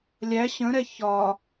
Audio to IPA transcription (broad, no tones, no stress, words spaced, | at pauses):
lʲæ ɕə̃ɾɛ çɒ